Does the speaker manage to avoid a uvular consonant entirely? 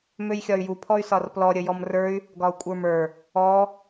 yes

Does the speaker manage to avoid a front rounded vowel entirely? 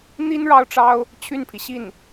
no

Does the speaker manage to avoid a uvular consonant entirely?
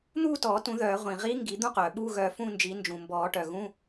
no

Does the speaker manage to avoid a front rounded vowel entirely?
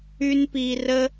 no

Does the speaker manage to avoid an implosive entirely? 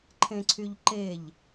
yes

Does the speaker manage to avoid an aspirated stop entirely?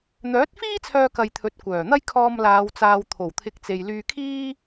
no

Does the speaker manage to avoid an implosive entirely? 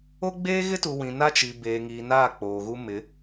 yes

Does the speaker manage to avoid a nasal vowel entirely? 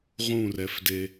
no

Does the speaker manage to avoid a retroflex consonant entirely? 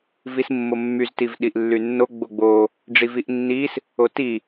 no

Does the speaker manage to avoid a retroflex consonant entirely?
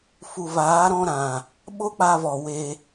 yes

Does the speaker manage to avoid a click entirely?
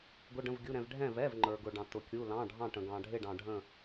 no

